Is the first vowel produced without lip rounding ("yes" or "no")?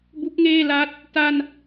no